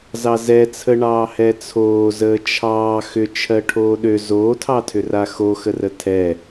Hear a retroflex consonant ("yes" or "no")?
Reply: yes